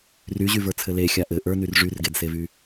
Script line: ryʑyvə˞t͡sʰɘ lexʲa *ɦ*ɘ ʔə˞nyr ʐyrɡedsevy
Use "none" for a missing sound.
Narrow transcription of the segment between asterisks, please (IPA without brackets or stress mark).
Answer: ʔ